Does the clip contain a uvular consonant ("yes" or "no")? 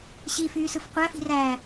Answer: yes